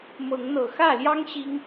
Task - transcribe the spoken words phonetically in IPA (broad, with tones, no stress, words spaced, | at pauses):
mɤ˨˦ŋn̪ɤ˨˩xä˥˨ljɑ˦ŋ ɕi˦ŋ